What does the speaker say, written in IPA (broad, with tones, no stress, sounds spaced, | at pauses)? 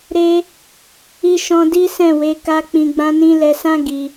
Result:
ɾ e˧ | i˧ ʃ ɔ̃˧ d i˦ s ɛ̃˦˨ w e˨˦ k a˦ k͡p ĩ˧ ɡ͡b ã˦ n ĩ˦ l ɛ˧ s ã˦ ɡ i˧